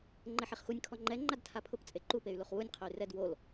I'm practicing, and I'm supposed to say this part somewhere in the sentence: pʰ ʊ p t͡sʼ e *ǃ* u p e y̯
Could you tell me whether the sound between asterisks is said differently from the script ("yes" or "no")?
no